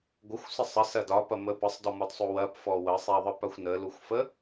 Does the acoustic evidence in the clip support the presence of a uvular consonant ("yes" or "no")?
no